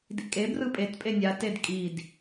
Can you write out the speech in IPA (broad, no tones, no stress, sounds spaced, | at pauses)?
d ḭ kʼ e b r ɯ pʼ e t pʼ e nʲ a t e d kʼ i d